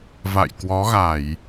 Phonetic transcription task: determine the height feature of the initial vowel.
low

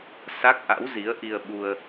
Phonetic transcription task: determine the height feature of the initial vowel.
low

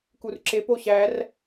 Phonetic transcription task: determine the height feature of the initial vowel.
high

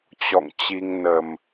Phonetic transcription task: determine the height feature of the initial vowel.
mid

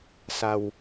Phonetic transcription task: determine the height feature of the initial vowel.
low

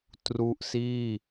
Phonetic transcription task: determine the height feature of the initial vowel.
high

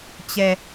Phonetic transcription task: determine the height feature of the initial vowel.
mid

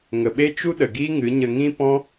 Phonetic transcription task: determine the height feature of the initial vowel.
mid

